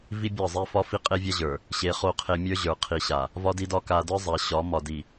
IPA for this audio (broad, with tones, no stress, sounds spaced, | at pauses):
v i˦ bʲ ɒ˦˨ zˤ e˦ f ɒ˦ f i˦ qʼ e˦ vʲ a˦ ʑ ə˞˨ | ɕ e˨ χ o˨ qʰ e˨ mʲ ə˞˦ ʑ ə˞˨ qʰ i˨ ɕ a˨ | v ɒ˦ d i˦ d ɒ˦ k a˨ d ə˞˦ zˤ a˨ ɕ ɒ˨˦ m ɒ˨ d i˨